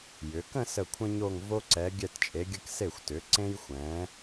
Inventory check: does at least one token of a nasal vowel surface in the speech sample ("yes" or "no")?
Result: yes